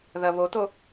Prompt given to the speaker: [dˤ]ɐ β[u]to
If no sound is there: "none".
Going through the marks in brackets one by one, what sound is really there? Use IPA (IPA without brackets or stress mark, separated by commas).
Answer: ð, o